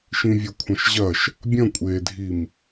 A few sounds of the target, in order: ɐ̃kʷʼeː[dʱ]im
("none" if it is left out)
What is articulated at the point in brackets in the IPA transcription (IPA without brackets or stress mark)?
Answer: dʱ